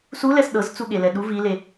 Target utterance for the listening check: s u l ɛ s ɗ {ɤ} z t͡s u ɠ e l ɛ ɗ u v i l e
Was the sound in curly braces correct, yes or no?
yes